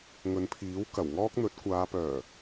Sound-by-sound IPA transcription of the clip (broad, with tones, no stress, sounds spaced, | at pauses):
ŋ ɵ˨˧ n pʰ iː˨˥ w k ɐ˨˩ w ŋ ɔː˥ k̚ n̪ ɵ˨˥ t̚ kʷ aː˨˧ p œː˨˩